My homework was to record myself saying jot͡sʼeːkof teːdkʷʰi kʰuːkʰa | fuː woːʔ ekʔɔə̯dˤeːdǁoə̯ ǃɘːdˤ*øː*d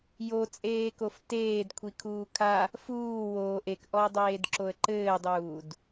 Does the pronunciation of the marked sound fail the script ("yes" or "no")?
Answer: yes